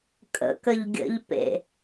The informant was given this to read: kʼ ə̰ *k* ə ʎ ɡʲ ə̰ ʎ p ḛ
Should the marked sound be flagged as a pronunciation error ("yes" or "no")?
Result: no